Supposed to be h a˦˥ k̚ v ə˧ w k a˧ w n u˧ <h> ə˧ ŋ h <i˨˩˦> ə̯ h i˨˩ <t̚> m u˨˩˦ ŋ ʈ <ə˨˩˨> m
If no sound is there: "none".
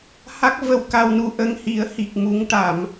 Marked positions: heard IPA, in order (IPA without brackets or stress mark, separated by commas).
ʔ, i˨˩˦, k̚, a˨˩˨